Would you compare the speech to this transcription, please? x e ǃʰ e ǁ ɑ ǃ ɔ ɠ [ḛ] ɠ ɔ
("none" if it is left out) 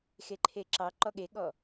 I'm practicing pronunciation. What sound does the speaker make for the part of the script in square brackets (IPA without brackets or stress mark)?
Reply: e